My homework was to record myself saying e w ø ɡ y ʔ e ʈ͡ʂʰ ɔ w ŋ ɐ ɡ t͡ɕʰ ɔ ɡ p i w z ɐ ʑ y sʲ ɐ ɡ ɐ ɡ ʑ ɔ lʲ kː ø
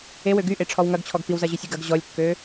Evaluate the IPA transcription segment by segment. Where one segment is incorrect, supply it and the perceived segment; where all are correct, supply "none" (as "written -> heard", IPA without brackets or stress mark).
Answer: none